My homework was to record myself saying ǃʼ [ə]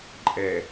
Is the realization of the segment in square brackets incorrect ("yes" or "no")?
yes